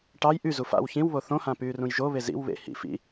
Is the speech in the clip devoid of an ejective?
yes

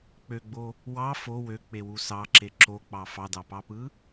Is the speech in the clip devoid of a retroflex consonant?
yes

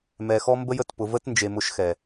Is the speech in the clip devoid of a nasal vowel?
yes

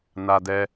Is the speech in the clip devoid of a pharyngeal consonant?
yes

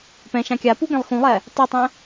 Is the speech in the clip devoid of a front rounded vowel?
yes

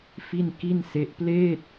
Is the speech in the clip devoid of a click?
yes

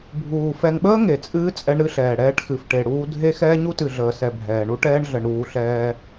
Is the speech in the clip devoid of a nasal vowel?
yes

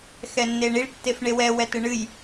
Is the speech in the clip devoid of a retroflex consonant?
no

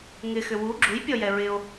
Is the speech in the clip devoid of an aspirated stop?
yes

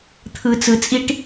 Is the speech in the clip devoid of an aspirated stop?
no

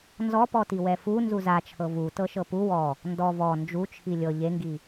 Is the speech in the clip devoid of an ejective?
yes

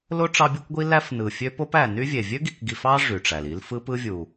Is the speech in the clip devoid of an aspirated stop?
yes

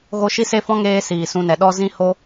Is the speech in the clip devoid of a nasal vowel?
no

